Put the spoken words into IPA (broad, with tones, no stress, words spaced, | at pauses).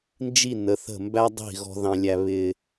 nd͡ʒi˦˨nə˨˦θə̤˦˨ mbæ˦dˤi̤˦˨ ɣɔ̤˦ðɑ̃˦lʲæ˦ βɪ˦